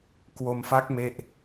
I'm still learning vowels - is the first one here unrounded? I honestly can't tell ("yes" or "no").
no